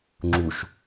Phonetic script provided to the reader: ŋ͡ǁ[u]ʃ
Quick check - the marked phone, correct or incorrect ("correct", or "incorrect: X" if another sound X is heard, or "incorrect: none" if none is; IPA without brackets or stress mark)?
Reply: correct